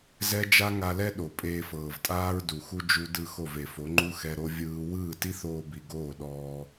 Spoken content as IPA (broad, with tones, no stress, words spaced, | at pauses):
zɛ˦d͡ʒa˦ŋa˧lɛ˦ ɗo˨pʼeː˧fɤː˨v tʼaː˦ɹdu˨xu˦ d͡ʒu˦ dɯ˦˨xo˦˨ve˨fo˨˦ ŋ͡ǃu˦xɛ˧ɾo˦ vʲɯː˧ wɯː˦˨ti˦θoː˧bi˨ ɡoː˦˨ɗɔː˧